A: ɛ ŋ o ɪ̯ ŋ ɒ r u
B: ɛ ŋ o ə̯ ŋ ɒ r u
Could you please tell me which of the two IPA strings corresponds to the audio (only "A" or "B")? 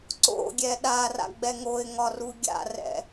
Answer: A